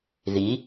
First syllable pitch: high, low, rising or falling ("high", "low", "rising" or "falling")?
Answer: rising